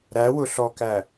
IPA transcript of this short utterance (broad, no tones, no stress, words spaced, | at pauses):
ɾæwʊɬɔkæ